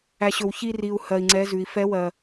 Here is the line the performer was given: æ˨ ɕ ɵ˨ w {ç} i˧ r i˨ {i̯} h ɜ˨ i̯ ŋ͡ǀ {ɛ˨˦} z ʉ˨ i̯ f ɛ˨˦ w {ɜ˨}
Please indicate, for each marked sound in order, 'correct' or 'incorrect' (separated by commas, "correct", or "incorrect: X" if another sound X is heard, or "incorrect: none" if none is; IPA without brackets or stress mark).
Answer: correct, incorrect: u̯, correct, correct